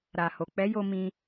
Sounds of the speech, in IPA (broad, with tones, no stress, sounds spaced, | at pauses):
ɾ a˨ h o˨ k͡p ɛ˨˦ j o˧ m ĩ˧